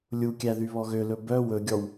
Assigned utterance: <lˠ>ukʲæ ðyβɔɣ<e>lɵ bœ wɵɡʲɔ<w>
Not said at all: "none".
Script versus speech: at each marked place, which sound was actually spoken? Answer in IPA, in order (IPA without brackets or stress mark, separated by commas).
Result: lʲ, ø, w